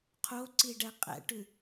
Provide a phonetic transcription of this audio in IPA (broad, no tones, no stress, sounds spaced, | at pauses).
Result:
qʰ o ǀ i ɖ ɛ qʼ ɛ̰ ʈ ʉ